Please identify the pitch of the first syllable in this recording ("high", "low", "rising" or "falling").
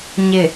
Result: low